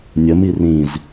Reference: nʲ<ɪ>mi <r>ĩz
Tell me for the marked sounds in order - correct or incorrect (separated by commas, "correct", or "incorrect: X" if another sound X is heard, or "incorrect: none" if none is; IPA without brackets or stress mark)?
incorrect: ə, correct